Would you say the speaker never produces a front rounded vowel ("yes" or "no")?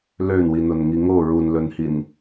no